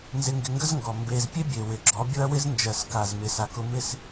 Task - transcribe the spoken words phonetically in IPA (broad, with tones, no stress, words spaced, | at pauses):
nzɪ˧ŋɡɪ˧ŋɡə˦zŋɡɔ˨ mbe˧z pʲe˦bʲe˨ wɪ˨ɡ͡ǁɔ˨˦bʲʊ˦ɐ̯ wɪ˦znd͡ʒɜ˨s ka˨zmɪ˨ sa˨kʊ˧mɪ˦˨s